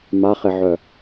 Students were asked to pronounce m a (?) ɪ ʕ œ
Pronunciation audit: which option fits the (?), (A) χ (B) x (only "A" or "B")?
A